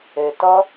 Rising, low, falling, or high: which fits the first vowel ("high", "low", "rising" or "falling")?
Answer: low